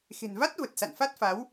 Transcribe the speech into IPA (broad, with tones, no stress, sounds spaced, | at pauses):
x e̤˨˩ n v a˦˥ t̚ v ə˨˩ t̚ s a̰˧˨ n f a˦˥ t̚ f a˨˦ w